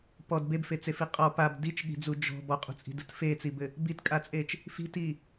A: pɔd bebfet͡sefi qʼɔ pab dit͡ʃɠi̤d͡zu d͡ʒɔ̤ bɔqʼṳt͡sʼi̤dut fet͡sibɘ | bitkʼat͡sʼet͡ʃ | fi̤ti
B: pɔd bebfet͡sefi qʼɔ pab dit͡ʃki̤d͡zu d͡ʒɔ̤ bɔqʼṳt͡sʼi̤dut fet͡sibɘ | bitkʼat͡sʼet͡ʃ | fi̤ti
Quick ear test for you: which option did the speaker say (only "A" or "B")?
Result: A